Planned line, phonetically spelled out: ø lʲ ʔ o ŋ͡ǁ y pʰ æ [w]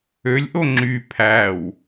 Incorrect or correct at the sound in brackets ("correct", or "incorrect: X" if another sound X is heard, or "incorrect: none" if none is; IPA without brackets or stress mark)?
correct